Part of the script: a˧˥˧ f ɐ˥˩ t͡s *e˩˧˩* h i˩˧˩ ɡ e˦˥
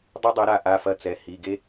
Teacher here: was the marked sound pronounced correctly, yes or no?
no